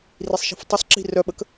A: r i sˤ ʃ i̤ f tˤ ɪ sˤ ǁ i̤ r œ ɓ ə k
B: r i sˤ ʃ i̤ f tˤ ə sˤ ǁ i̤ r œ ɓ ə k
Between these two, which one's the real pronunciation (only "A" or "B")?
A